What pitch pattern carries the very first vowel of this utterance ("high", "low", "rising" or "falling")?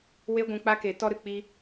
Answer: high